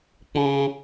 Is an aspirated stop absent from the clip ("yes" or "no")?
yes